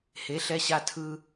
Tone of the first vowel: rising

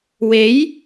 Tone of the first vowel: rising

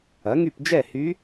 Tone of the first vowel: rising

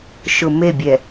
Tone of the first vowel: low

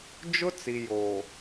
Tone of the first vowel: high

